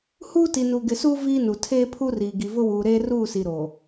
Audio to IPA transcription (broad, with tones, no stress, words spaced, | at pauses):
huː˦ti˨nu˨ ɡɪ˨suː˦ viː˦nu˨ tʰeː˦pʰu˦riː˨ ɡi˨vʊ˦wuː˨ ɾeː˦ruː˦˨si˨ ɾo˨